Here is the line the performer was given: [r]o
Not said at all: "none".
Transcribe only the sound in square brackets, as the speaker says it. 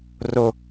r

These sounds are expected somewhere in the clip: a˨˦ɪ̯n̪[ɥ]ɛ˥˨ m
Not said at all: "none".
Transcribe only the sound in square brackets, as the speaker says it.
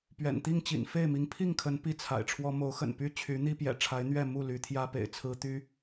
ɥ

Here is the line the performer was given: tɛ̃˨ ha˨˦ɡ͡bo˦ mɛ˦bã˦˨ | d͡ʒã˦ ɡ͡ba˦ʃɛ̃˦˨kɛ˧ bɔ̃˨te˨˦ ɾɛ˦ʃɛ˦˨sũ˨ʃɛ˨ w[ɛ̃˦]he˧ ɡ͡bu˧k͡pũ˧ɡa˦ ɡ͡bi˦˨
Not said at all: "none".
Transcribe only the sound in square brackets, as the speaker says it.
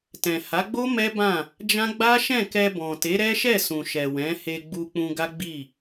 ɛ̃˨˦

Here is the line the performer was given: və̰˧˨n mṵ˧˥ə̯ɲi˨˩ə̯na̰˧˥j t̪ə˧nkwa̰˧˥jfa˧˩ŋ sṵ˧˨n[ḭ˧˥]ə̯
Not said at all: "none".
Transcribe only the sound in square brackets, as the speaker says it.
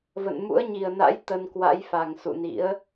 ḭ˧˥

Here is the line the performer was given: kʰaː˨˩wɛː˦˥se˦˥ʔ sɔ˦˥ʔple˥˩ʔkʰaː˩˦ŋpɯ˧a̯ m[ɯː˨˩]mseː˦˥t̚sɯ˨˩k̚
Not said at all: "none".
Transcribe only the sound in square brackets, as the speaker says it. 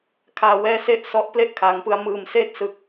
ɯː˨˩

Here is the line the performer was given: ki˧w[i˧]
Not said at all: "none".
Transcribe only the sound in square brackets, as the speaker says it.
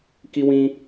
ĩ˧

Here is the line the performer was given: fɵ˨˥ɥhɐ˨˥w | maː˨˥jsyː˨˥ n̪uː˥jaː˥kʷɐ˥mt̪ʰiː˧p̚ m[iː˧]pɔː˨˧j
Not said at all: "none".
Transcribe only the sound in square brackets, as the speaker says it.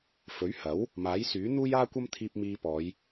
iː˧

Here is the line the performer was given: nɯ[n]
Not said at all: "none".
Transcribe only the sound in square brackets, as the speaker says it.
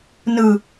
none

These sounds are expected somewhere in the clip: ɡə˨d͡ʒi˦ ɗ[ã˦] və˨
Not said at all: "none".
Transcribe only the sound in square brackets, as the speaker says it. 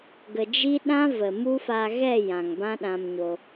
ã˦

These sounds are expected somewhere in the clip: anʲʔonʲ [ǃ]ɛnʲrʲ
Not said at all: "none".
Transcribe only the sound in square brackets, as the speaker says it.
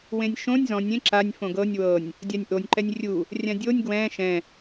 ǃ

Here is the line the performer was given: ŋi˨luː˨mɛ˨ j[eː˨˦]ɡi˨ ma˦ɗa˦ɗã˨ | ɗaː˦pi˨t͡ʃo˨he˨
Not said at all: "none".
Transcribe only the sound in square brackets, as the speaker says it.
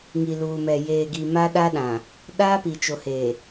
eː˨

